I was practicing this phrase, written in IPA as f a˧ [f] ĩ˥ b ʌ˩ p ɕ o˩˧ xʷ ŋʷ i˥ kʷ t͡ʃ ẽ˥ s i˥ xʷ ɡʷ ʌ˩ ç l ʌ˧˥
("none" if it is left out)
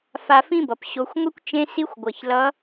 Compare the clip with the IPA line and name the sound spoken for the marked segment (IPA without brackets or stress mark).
f